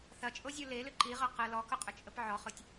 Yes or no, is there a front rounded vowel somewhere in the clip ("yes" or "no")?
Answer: yes